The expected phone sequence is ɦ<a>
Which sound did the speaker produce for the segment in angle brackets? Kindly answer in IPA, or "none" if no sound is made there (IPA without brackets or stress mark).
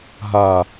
a